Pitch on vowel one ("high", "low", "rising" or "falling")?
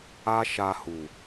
high